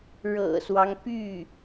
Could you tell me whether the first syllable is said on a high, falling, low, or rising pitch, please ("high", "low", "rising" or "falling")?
low